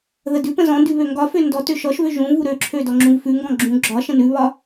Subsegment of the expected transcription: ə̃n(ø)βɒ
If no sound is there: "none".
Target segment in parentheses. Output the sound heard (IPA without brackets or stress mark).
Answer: ʉ